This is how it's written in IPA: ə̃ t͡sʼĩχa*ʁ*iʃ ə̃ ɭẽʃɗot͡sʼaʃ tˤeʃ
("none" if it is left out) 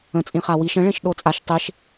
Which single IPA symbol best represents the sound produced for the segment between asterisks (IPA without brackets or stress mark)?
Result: w